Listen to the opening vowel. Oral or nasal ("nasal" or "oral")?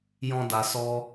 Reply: nasal